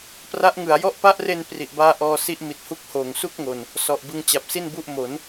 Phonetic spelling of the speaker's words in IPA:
p r a˦˥ ʔ ŋ ɯ˩˦ a̯ j ɔ˦˥ ʔ p a˦˥ ʔ r e˧ n p r i˨˩ ʔ b aː˧ ʔ ɔː˧ s i˦˥ ʔ m i˨˩ t̚ h u˦˥ k̚ h oː˨˩ ŋ s u˥˩ k̚ ŋ o˨˩ n | s ɔ˨˩ ʔ b ɯ˧ ŋ t͡ɕ a˨˩ p̚ s i˥˩ n b u˥˩ ʔ m o˩˦ n

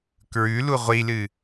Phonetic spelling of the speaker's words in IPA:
k ɹ ʉ l u ʁʷ i l ɨ

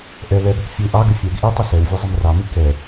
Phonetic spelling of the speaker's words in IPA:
ʔ ɛ l ɛ b ɘ k fʲ u ʔ ɑ ɡ ɘ fʲ ɛ ɡ ʔ i tˤ ə s ɛ w vʲ ɘ zˤ ə m r ɑ m i k ɛ

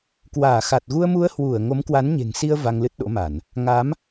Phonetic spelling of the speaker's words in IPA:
k w aː˧˩ x a˨˩ t̚ ɣ u˧ ə̯ m u˧ ə̯ h w u˧˩ ə̯ ŋ o˨˦ m k w a˨˦ n ɲ e̤˨˩ ŋ s i˧ ə̯ v a˧ ŋ l ɨ˦˥ t̚ ɗ o̰˧˥ m a˧˩˨ n | ŋ a˨˦ m

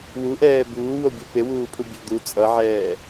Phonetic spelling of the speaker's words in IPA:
w u ʔ ɛː b uː w o bʲ e p e w uː pʰ u bʲ o d̪ u t͡sʼ ʌ ʕ ɛː

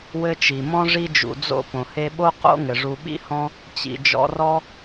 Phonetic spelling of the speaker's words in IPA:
w ɘ˦ t͡ʃ i˩ m ɔ̃˥ ʐ i˥ d͡ʒ ṵ˨ d͡z o̰˥ p õ˩ h e˦ ɓ o˥ q o̰˥ ŋ ɘ˩ ʐ u˨ ɓ ḭ˥ h ɔ̃˦ | t͡ɕ ḭ˨ d͡ʒ ɔ̰˦ r ɔ˥

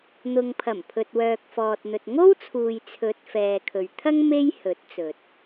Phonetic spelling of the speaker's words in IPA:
n̪ ʊ˨ ŋ pʰ ɐ˨˩ m pʰ ɵ˨ t̚ w œː˨ k̚ f ɔː˨ t̚ n̪ ɵ˨ t̚ ŋ o˥ w t͡sʰ uː˨ j t͡sʰ ɵ˨˥ t̚ f ɛː˨ kʰ ɵ˨ ɥ t̪ʰ ɐ˥ ŋ m e˥ j h ɵ˨˥ t̚ t͡s ɵ˨ t̚

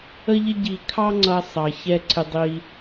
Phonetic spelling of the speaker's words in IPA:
ə˥ ʎ ɪ˥ ɟ i˧ kʰ ɑ˥ ŋ͡ǀ ʌ˧ sˤ ɑ˩ ç ɛ˧ ǀʰ ɪ˧ dˤ i˧

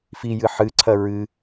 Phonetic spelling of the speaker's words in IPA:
f i j ɨ ħ ɨ ǀʰ ɐ ɹ ɨ

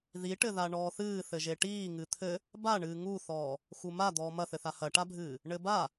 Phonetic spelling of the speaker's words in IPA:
ð i ʈ ɘ ð a ɳ ɔː θ ɨː θ ɘ ʒ e ʈ iː ŋ ɨ t̪ʰ ɘ | b a ɳ ɨː ŋ u θ ɔː | x u m a d̪ ɔː m ɐ θ ɘ θ a h ɐ ʈ a bʱ ɨː | ɳ ɘ b a

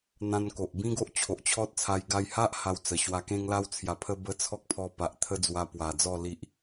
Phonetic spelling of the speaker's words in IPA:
n̪ ã˧ n k o˨ ʔ b ĩ˦ ɡ o˦ ʔ t͡ɕʰ o˨ ʔ t͡ɕʰ ɔ˦ t̚ t͡sʰ a˧ j ɡ a˧ j h a˦ ʔ h a˧ w t͡s ə˨˩ ɕ w a˧ k ẽ˦ ŋ l a˦ w t͡sʰ j a˧ pʰ ə˦ b ə˦ t͡sʰ ɔ˦ k̚ pʰ ɔ˧ p a˨ ʔ t̪ʰ ə˧ d͡z w a˧ p w a˨˩ d͡z ɔ˥˧ l i˦ ʔ

